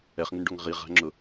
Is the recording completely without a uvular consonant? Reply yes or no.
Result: no